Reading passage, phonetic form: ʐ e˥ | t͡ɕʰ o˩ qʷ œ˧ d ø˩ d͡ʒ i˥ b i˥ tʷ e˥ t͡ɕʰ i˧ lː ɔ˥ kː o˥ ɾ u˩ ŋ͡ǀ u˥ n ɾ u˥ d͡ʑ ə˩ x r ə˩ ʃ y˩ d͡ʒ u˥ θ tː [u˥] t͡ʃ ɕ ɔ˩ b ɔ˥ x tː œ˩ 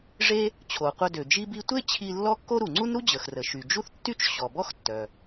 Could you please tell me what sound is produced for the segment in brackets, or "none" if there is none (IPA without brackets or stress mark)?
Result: y˥